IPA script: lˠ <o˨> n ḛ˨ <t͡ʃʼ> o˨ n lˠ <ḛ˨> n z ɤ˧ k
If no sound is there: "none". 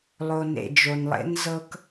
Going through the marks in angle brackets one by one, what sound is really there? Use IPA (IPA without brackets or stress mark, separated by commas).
o˨, d͡ʒ, ḛ˦